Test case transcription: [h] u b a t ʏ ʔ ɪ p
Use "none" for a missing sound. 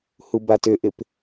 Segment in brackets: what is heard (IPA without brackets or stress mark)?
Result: h